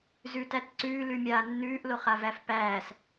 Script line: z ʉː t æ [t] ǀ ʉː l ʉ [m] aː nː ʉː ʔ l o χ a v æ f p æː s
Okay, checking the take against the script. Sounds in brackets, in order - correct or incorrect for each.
correct, incorrect: mʲ

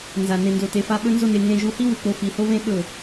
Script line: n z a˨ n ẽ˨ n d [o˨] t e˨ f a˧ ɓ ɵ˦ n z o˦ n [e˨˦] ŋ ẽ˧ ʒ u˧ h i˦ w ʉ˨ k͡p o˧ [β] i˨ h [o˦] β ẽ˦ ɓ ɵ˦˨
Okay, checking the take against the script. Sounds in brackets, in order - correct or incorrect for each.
correct, incorrect: e˧, incorrect: f, correct

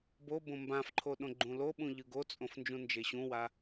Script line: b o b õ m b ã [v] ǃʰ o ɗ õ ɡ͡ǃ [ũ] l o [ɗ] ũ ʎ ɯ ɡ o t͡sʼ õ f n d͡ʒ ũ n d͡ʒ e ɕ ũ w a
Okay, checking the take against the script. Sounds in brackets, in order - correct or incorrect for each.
incorrect: f, correct, incorrect: ɓ

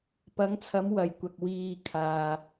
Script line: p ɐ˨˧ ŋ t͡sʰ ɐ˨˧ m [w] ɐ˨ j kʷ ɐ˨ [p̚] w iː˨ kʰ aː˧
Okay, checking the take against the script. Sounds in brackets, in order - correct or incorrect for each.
correct, incorrect: k̚

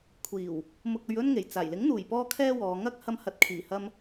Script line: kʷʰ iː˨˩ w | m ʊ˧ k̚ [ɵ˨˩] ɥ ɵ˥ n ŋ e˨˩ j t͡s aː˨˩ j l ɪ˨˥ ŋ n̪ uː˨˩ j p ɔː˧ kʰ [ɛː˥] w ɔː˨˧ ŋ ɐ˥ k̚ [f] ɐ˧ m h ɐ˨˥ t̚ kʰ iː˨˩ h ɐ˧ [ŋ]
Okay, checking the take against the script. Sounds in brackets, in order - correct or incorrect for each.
incorrect: ɵ˧, incorrect: ɛː˧, incorrect: h, incorrect: m

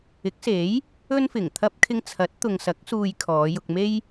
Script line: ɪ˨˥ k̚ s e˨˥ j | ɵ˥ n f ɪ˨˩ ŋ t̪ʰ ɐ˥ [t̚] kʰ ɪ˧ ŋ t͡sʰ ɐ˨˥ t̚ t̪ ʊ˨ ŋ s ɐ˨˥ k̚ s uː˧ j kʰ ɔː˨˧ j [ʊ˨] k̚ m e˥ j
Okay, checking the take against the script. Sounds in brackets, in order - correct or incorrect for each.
incorrect: p̚, incorrect: ʊ˧

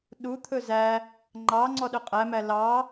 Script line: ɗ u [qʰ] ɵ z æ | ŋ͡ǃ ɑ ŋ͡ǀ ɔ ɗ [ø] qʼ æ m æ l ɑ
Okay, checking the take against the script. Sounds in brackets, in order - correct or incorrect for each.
incorrect: t̪ʰ, correct

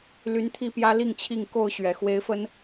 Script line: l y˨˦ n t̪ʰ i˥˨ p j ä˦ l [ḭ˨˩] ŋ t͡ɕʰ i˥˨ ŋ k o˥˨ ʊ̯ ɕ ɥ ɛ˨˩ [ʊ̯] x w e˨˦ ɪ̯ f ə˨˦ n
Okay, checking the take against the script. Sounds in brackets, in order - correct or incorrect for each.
incorrect: i˥˨, incorrect: none

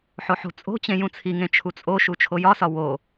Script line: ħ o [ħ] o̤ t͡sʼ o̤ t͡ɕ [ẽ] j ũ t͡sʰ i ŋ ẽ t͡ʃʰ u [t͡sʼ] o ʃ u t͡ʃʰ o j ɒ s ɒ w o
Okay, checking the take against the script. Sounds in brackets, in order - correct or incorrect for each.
correct, correct, correct

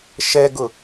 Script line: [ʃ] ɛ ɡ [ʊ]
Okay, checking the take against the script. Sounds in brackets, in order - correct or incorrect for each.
correct, correct

